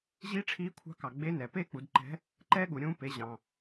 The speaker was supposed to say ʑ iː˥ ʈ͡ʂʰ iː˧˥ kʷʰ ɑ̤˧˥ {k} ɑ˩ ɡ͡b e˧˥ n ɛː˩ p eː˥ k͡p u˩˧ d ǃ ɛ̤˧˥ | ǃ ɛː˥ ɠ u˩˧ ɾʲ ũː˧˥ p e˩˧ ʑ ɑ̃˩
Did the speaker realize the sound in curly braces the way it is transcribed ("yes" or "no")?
yes